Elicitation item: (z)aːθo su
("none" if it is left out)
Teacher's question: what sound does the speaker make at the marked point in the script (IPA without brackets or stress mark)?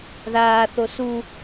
ð